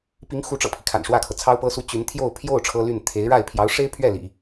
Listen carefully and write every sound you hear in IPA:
p i˧˥ ŋ x u˧˥ ʈ͡ʂ ɤ̰˨˩ pʰ i˦ kʰ a̰˨˩ n ʂ w ä˥˩ kʰ ɤ˩ t͡sʰ ɑ˥ ʊ̯ p ɤ˥ s u˥ t͡ɕ y˧˥ n t̪ʰ j o˥˧ ʊ̯ pʰ j o˥˩ ʊ̯ ʈ͡ʂʰ ɤ˥ l y˥˩ n t̪ʰ e˧˥ ɪ̯ ɻ a˥˩ ɪ̯ pʰ j ɑ˧˥ ʊ̯ ʂ e˥ ɪ̯ pʰ ɥ ɛ˥˩ l ḭ˨˩˦

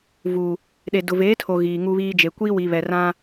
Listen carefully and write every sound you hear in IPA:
v u˨ | ɗ e˨ d ʊ˨ v eː˨˦ tʰ o˨ ɣ iː˨ ŋ u˦ β iː˦ d͡ʒ e˨ kʷ iː˦ w i˨ β ɛ˨ r ã˦

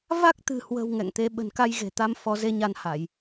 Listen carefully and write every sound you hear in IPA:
v a˦˥ k̚ t̪ ɨ̤˨˩ h w ə̤˨˩ w ŋ ɛ̰˧˨ ŋ t̪ e˨˦ ɓ ə̤˨˩ n k a˧ j ɣ e̤˨˩ t̪ a˧ m f ɔ˨˦ z e˨˦ ɲ a˧ n h a˧˩˨ j

